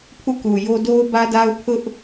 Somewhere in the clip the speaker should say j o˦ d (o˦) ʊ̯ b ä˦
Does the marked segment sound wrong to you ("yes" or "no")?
no